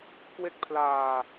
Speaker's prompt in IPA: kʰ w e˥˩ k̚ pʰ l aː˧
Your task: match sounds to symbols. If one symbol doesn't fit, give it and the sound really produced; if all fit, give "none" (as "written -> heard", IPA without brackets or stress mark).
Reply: kʰ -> k